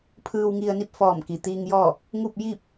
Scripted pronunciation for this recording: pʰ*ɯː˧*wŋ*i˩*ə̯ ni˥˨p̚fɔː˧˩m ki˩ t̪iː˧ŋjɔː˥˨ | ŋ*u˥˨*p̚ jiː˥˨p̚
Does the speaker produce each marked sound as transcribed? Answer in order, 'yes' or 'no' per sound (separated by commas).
yes, no, yes